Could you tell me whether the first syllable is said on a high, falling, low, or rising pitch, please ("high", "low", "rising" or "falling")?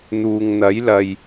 low